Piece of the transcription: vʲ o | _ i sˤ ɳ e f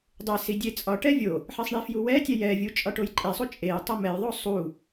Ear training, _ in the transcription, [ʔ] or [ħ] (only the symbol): ħ